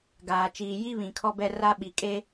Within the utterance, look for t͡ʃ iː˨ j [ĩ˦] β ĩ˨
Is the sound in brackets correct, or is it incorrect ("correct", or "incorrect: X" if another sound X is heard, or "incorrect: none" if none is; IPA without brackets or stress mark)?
incorrect: i˦